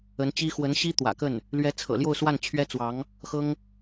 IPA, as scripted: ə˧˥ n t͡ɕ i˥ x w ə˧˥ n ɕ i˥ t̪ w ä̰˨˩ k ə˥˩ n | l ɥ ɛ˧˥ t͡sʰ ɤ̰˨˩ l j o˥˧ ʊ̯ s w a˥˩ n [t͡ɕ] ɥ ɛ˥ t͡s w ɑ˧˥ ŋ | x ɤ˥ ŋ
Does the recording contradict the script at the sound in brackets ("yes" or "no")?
yes